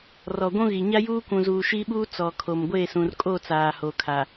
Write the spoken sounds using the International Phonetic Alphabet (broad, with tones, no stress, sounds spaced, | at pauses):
r ɔ˨ ɡʷ ũ˦ ɣ i˨ ɲ a˦ j uː˦ kʷ ũ˨ z uː˨ ʃ i˦ ɓ uː˦ t͡s ɔ˨ kʰ o˨ m ɡʷ eː˦˨ s ũ˨ r kʼ o˦˨ t͡s aː˨ h o˨ kʰ a˨